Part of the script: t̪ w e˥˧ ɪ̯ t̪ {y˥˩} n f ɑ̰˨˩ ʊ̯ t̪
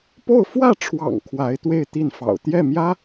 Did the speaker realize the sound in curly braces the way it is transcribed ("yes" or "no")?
no